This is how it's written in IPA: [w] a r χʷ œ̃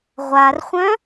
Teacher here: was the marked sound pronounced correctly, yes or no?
no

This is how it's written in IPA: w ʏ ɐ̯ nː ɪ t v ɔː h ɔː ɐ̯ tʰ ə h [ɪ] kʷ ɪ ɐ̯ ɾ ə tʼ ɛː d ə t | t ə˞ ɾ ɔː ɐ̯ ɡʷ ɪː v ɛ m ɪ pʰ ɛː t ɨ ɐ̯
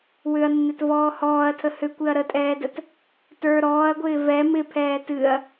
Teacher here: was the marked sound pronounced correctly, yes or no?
no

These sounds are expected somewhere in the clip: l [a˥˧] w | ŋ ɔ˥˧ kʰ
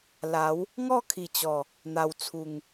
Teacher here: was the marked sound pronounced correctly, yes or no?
no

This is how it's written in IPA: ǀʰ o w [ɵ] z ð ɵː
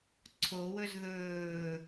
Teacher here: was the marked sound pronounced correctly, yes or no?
yes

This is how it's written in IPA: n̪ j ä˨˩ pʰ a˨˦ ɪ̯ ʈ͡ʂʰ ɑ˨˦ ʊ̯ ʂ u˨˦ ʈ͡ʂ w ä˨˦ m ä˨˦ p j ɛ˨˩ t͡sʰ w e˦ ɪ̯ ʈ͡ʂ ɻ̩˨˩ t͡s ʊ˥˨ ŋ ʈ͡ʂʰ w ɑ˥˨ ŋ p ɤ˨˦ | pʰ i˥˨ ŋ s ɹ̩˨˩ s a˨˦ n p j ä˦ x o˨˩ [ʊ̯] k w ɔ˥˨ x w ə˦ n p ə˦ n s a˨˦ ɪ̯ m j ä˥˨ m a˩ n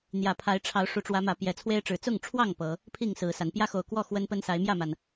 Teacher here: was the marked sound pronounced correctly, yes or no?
yes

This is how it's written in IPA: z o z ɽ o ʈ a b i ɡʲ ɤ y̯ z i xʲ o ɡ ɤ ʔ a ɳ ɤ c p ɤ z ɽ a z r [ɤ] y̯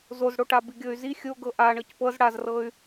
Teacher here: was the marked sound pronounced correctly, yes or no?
yes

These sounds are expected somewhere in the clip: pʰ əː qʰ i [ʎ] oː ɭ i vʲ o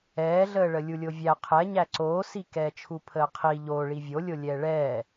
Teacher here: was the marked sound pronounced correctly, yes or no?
yes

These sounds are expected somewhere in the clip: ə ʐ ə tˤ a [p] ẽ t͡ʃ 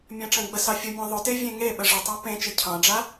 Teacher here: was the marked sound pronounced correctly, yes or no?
yes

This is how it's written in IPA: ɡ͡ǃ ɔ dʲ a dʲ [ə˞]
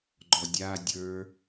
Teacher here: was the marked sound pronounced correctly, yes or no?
yes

